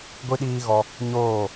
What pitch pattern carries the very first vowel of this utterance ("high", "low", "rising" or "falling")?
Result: high